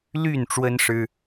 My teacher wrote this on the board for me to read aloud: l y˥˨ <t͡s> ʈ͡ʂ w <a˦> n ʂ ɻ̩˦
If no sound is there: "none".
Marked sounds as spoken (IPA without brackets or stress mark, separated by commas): n, ə˦